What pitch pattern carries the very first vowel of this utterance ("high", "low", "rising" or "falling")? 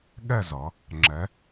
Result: falling